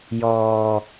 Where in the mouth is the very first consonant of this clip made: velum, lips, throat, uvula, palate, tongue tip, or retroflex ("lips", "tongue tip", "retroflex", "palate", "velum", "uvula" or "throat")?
palate